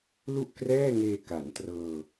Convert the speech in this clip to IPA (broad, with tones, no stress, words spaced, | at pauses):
lu˥˩ʔ krɛː˥˩ŋeː˧ ka˩˦ntrɤː˧